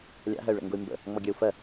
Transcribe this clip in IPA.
lʲ a̰ ɦ ɜ y̯ ɭ ə̰ ŋ ɡ ʊ y̯ m b ə̰ | ŋ͡m ɔ ɡʲ ə˞ u̯ f ɜ

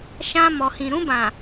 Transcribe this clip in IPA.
ʃ ã˧ m ɔ˨ h ĩ˨ ɾ ũ˧ b ã˨

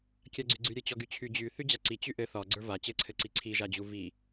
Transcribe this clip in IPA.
kʲ a ɡ͡ǀ y ɡ͡ǀ y ɾʲ ɘ t͡ɕ ɔ ɡ y t͡ɕʰ y d͡ʑ y θ y d͡ʑ a ǀ i t͡ɕ y ʔ ɘ θ ɒ ɡ͡ǀ ə˞ v a t͡ɕ ɘ ǀʰ ɘ ǀ i ǀʰ i ʒ a d͡ʑ u v i

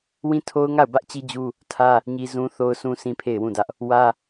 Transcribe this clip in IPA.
w ĩ˦ tʰ o˦ ʊ̯ ŋ a˦˨ ʊ̯ b ä˦ ʔ t͡ɕ i˦ d͡ʑ u˦ | tʰ ä˦ | ɲ i˦ z ũ˦ θ o˦ ʊ̯ sʰ ũ˦ sʰ ĩ˦ pʰ e˦˨ ɪ̯ w ũ˦˨ d ä˦ ʔ | w ä˦

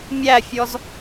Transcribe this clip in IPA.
mʲ æ fʲ ɔ z

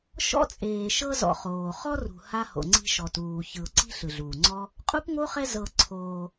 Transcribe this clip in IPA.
ʃ ɔ̰˥ t͡sʼ eː˨ ʃ ɤ˦ z ɔ̰˨ χ oː˩ χ ɔ˥ r ṳ˨ h a˥ h o̰˨ ŋ͡ǀ i̤˦ ʃ ɔ˨ t uː˩ ç ɯ˩ ʊ̯ ǀ i̤˦ ɬ ɯ˩ ɮ uː˩ ŋ͡ǀ ɔ˥ | qʼ u˥ p ŋ o˥ χ ɛ˦ z ɤ˨ ǀʰ oː˨

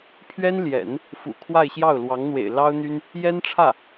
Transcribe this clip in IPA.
pʰ ɥ ɛ˥ n l j ɛ̰˨˩˦ n | f ṵ˨˩ kʰ w a˥˧ ɪ̯ ɕ j ɑ˥˩ ʊ̯ l w ɑ˧˥ ŋ n̪ w ḛ˨˩ ɪ̯ l ɑ˥ ʊ̯ n̪ y˥ n | j ɛ˥ n ʈ͡ʂʰ ä˥˩

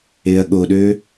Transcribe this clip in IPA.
e ɐ̯ ɠ o ɗ ø

